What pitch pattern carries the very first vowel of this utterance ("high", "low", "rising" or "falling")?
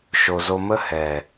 low